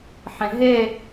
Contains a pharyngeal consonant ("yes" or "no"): yes